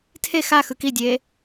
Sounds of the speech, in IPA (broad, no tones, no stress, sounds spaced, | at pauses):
tʰ e x a x ɯ k i dʲ eː